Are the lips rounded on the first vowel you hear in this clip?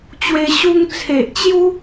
no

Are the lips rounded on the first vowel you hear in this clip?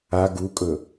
no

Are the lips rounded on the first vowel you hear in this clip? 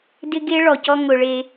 no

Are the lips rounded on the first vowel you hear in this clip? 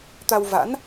no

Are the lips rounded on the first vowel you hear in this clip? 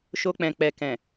yes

